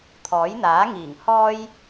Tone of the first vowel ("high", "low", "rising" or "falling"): rising